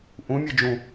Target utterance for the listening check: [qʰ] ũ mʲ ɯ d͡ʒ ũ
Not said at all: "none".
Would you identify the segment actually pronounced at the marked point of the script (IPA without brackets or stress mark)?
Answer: ʔ